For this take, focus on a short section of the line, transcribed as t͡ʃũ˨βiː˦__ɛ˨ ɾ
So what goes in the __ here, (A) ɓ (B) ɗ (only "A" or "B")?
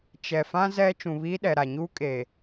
B